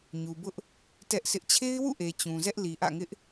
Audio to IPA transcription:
ɲu˨bʊ˦ʔ | tɛ˦ʔsʰɪ˦ʔ t͡ɕʰe˦ɪ̯wṵ˦˨ʔe˨ t͡ɕũ˨zɛ˦ʔ li˨ʔä̰˦˨ŋɪ˦ʔ

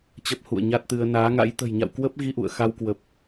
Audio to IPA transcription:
t͡ɕə˦˥p̚ hṵ˧˨ə̯ɲa˦˥t̚t̪ɨ˧ə̯ naː˨˦ŋa̰˧˥j t̪ə̤˨˩j ɲa̰˧˨wkwə˦˥p̚ɣi˧ ʔṵ˧˨ə̯xa˧wkwə˨˩p̚

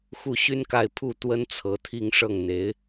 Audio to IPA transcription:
xu˥˩ɕy˥nka˥˧ɪ̯ pʰu˥˩ t̪wə˥nt͡sʰɤ˧˥t̪ʰi˥˧ŋ ʂɤ˥˩ŋn̪e˧˥ɪ̯

